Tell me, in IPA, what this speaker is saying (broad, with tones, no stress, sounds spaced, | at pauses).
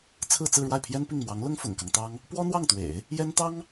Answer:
t͡sʰ ɹ̩˥˧ t͡s ɹ̩˥˧ ɻ w a˥˩ ɪ̯ pʰ j ɛ˥ n p i˥˩ ŋ m w ɑ˧˥ ŋ l ʊ˥ ŋ f ʊ̰˨˩ ŋ k ɑ˦ ŋ t̪ ɑ˥ ŋ | p w ɔ˥ n̪ w ɑ˥˩ ŋ t̪ w ḛ˨˩˦ ɪ̯ | j ɛ˥ n t̪ ɑ˥ ŋ